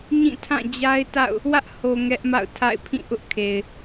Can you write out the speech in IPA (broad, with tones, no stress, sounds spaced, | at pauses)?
ɲ ĩ˦˨ tʰ ã˦˨ d͡ʑ a˦ ɪ̯ t a̰˦˨ ʊ̯ | w ä˦ ʔ h o˨ ŋ ɛ˦ ʔ m a̰˦˨ ʊ̯ tʰ a̰˦˨ ɪ̯ pʰ ĩ˦˨ ʔ ʊ˦ ʔ kʰ e˨ ɪ̯